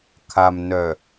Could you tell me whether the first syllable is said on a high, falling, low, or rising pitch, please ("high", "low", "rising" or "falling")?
low